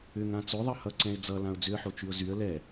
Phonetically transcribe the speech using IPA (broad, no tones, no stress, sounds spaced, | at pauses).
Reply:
ʏ ŋ ã t͡s o ðˤ ʌ h ʌ ǀ ɛ̃ ɪ̯ d͡z ʌ l ã ʊ̯ d͡z ʏ ə̯ ħ o t͡ʃ y ʊ̯ z y ə̯ l ɛ